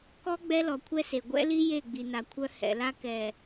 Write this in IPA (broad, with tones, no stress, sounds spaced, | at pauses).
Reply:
k ɔ˦ ɡ͡b ɛ˦ l ɔ˨ kʷʰ ɛ˦ s e˨ ɡʷ ɛ̰˦ l i˦ j e˦˨ ɡ͡b i˨ n a˨ kʷʰ œ˦ h ɛ̰˨ l a˦ k ɛ˨